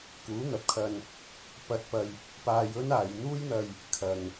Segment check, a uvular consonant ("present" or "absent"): absent